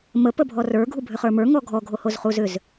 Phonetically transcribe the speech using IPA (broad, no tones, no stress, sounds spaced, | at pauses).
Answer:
m ə p ə bʱ ɔ r ə˞ ɡʱ u bʱ ʏ χ ə˞ m ə˞ ŋ ɔ ɡʱ ɔ ɡʱ o h o z χ u z ʏ z